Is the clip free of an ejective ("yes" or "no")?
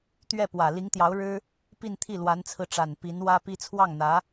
yes